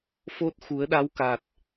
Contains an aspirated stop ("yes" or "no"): no